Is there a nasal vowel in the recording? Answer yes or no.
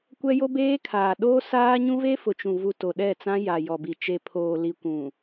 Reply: yes